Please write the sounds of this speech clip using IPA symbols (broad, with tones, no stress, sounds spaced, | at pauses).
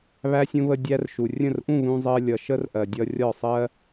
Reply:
β æ˧ sʲ ũ˧ β ə˧ dʲ æ˧ r ʃ u˨ rʲ ə̃˦˨ r ʔ ũ˦˨ β ũ˧ zˤ ɜ˧ lʲ ʌ˨ ʃ ə˦ r ʔ ɜ˨ dʲ ʌ˧ rʲ ɒ˦˨ sˤ ɜ˦